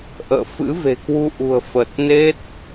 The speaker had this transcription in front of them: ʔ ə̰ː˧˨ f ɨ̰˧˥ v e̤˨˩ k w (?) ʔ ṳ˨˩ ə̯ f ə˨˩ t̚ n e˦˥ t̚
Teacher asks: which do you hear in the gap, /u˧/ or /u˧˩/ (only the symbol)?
u˧